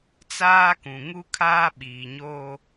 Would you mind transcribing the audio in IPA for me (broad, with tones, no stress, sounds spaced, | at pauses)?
t͡s aː˦ k ũ˨ ŋ u˦ kʰ aː˦ ɓ iː˨ ɲ oː˦